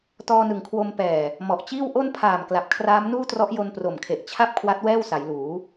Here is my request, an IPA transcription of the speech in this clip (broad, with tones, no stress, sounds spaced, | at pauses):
t ɔː˧ n ɯ˨˩ ŋ kʰ w o˧ m p ɛː˨˩ | m ɔ˨˩ ʔ t͡ɕ iː˥˩ w ʔ o˥˩ n pʰ aː˨˩ m k l a˨˩ p̚ kʰ r aː˦˥ m n uː˥˩ t r ɔ˦˥ ʔ j o˧ n p r o˨˩ m kʰ e˨˩ ʔ t͡ɕʰ a˥˩ p̚ kʰ w a˦˥ t̚ w ɛː˥˩ w s a˩˦ j l uː˩˦